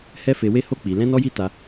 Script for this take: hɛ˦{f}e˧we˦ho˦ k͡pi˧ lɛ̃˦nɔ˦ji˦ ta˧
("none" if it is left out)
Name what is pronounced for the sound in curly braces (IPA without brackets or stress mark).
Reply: f